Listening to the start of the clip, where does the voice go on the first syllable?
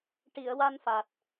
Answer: low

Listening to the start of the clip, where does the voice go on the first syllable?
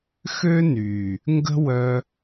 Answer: high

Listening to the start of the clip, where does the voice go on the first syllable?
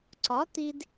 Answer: rising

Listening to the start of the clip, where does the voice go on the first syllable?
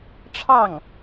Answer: falling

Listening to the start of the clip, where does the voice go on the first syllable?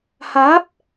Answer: rising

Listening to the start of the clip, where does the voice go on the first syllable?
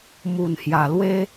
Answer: low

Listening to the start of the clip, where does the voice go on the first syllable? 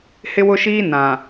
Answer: high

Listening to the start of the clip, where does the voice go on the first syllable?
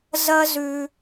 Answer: high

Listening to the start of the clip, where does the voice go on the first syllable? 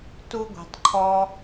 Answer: high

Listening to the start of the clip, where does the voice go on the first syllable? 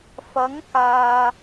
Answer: rising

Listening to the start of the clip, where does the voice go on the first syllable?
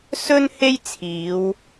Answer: high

